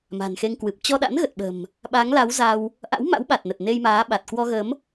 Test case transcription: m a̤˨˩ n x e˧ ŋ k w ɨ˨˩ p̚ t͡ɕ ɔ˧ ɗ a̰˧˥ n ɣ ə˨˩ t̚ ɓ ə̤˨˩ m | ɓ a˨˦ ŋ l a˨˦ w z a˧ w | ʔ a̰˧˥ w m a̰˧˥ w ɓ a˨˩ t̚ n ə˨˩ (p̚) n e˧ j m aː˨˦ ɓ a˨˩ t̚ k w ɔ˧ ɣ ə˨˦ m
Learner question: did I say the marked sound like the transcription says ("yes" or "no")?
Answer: no